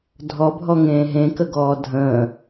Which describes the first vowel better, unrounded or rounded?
rounded